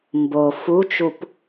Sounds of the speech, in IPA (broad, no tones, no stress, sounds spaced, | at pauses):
m b o f u t͡ʃ u p